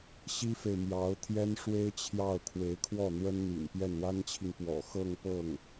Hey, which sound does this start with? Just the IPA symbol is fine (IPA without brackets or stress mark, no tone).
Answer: ɕ